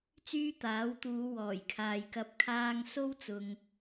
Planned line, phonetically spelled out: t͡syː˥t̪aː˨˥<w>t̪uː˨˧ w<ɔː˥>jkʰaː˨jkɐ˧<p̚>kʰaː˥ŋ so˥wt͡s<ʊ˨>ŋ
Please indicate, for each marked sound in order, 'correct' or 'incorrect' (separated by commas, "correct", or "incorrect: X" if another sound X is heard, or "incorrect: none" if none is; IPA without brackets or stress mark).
correct, incorrect: ɔː˨˩, correct, correct